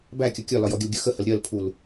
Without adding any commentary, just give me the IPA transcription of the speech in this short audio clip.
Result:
b æ kʲ ʌ kʲ ɒ l ɒ j ɔ ɡʲ ə l ɡʲ ɜ x ə h ə l ɾʲ ɜ l pʰ u l

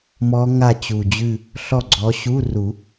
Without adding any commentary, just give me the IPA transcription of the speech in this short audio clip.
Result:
m ɔ˦˥ ŋ a˦˨ t͡ɕ u˨˩ d͡ʑ ʉ˦˨ | ɬ ɔ˦˨ ɡ͡ǀ ɔ˨˦ ɕ u˧˥˧ r u˨˩˦

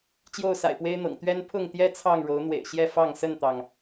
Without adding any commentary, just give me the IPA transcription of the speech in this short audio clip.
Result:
t͡ɕ j o˥˨ ʊ̯ s a̰˨˩ ɪ̯ p w e˦ ɪ̯ n̪ ɤ̰˨˩ ŋ t̪ ɥ ɛ˦ n pʰ ʊ˥˨ ŋ t̪ j ɛ˦ t͡sʰ ɑ˥˨ ŋ ɻ o˨˦ ʊ̯ n̪ w ḛ˨˩ ɪ̯ ɕ j ɛ˥˨ f ɑ˥˨ ŋ s ə˥˨ n t̪ ɑ˩ ŋ

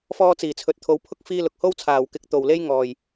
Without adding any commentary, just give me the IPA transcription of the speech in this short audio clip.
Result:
f ɔː˧ t͡s iː˨˩ t͡sʰ ɵ˨ t̚ t̪ʰ o˨˧ w pʰ ʊ˥ k̚ f iː˥ l ʊ˨ k̚ h o˥ w t͡sʰ aː˨ w k ɪ˧ k̚ t̪ o˨ w l e˥ j ŋ ɔː˨ j

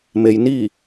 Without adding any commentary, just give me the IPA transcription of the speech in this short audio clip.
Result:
m e˧ j n iː˥˨

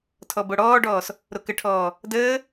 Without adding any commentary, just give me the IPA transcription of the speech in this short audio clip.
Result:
tʰ ɔ b o ɽ ɔː ɖ ɔː s | ɾ o k ə ʈʰ ɔː | d əː

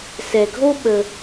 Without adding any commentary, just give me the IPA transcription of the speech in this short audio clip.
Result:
s ɛ˩ ɡʱ o˥ ɓ ə˩

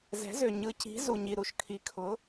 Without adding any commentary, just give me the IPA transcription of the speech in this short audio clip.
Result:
z ɛ̤˩˥ z ø˩ ɲ ɯ˩˥ c i̤˩˥ z u˩ ɲ i˩ ɾ u˩ ʃ kʰ i˩˥ kʰ ʊ˩˥

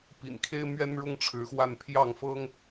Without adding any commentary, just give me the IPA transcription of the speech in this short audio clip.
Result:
p ḭ˨˩ n kʰ e˥ ɪ̯ m ɥ ɛ˥ n ɻ ʊ˥ ŋ ʈ͡ʂʰ ɻ̩˧˥ x w a˥˧ n pʰ j ɑ˥˩ ŋ f ɤ˥ ŋ

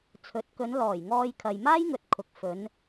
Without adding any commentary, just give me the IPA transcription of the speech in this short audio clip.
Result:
t͡sʰ ɵ˨˥ t̚ k ɵ˨˧ n l ɔː˨˩ j ŋ ɔː˧ j kʰ ɐ˨ j m aː˥ j ŋ ɵ˨ t̚ kʰ ʊ˨ k̚ f ɵ˨˧ n

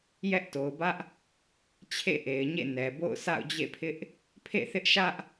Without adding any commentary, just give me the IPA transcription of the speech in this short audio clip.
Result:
j ɛ˦ ʔ t o˨ ʊ̯ b ä˦ ʔ | t͡ɕʰ ḛ˦˨ ʔ e˨ ɪ̯ ɲ ḛ˦˨ n ɛ˨ b o̰˦˨ ʊ̯ s a̰˦˨ ʊ̯ d͡ʑ ḛ˦˨ pʰ ɪ˦ ʔ | pʰ ḛ˦˨ θ ɪ˦ ʔ ʃ ä˦ ʔ

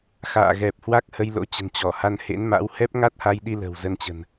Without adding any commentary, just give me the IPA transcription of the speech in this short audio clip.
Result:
x a̰ː˧˨ ɣ ɛ˨˩ p̚ h w a˦˥ k̚ h ə˧ j l o̰˧˥ t͡ɕ ə̤˨˩ n t͡ɕ ɔ˧˩ h a˧ n h ḛ˧˥ n m a̰˧˥ w h ɛ˦˥ p̚ ŋ a˦˥ t̚ h a˧ j ɗ i˧ l ə̤˨˩ w z ə˧ n t͡ɕ ə̤˨˩ n

